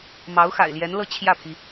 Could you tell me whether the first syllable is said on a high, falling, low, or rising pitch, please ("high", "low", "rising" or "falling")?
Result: rising